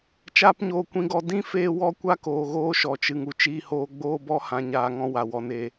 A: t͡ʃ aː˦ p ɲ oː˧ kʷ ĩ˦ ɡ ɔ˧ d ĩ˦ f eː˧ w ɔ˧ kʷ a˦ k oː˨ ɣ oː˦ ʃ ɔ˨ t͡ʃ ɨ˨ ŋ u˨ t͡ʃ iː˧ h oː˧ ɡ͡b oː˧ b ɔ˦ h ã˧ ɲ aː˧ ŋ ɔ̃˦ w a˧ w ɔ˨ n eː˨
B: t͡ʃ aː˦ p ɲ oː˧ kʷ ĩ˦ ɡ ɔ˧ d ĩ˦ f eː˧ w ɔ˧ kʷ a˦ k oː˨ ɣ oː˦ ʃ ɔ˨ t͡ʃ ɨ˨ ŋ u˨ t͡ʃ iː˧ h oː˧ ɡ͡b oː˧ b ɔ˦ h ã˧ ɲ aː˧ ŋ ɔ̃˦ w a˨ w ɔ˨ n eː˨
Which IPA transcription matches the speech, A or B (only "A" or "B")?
B